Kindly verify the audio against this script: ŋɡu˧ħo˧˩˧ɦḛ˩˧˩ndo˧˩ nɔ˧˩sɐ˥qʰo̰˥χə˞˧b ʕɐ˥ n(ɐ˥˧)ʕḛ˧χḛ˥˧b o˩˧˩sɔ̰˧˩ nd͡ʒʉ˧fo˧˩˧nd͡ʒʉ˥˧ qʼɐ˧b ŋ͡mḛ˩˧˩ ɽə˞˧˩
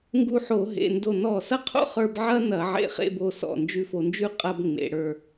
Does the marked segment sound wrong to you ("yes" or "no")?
yes